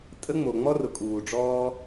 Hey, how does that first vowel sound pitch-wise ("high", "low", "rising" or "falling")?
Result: high